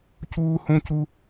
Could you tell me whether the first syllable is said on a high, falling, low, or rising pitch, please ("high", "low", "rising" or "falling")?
high